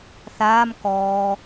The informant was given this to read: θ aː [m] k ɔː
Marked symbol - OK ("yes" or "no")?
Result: yes